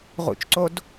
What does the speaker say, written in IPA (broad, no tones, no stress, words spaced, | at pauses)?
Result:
ʁṵt͡ʃǀod